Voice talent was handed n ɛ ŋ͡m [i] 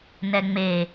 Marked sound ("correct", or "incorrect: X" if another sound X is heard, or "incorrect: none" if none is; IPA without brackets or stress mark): incorrect: e